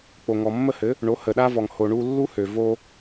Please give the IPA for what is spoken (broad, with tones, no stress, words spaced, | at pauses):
k͡po˩ŋɔ˩mːə˥˩hɘ˩˥ | ɳo˩˥hə˩ɗa˥vɔ˩ŋ ho˩ɳu˧ lːu˥hø˩ vo˧